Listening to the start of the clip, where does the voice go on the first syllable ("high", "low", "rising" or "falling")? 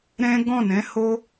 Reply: high